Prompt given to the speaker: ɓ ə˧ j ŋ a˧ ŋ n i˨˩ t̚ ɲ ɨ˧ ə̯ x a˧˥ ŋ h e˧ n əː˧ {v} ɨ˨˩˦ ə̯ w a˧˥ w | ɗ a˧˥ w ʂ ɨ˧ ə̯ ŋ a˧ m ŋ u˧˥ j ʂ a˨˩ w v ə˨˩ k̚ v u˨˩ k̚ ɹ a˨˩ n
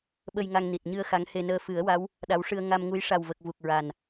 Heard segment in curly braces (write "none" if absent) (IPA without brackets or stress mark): f